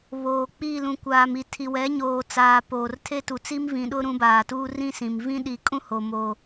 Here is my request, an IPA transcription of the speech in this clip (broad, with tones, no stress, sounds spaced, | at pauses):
β oː˨ k͡p i˦˨ l ũ˨ kʷ aː˨ m i˨ tʰ i˨ w ɛ˨˦ ɲ oː˨ t͡s aː˨ p oː˨ r tʰ e˦ t u˨ t͡s i˦ m v ĩ˨ ɗ ʊ˦ ɾ ũ˨˦ b aː˨ t uː˦ r ĩ˦ s ĩ˨ m v ĩ˦ ɗ i˨ kʼ ũ˦ h o˨ m o˨